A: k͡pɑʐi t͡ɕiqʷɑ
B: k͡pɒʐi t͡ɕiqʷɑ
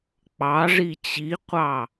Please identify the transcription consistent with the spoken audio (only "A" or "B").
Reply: A